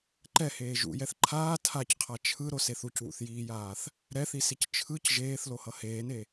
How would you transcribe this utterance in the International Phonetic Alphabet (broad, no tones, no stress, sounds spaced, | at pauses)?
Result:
ǃ ɛ h eː ʒ ṵ j ɛ θ ǃʰ aː tʰ a c qʰ a t͡ʃʰ ɯ ɾ o s e θ u c w ṵ θ j iː j aː θ | ɾ ɛ θ i s i c t͡ʃʰ ɯ c ʒ eː θ l o h ʌ h eː n e